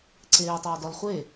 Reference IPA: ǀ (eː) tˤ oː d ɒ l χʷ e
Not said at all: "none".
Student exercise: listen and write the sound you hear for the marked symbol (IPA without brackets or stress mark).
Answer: eː